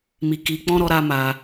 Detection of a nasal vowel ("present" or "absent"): present